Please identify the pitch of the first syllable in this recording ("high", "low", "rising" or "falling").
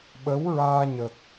rising